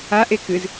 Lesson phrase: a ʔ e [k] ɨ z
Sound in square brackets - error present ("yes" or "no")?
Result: no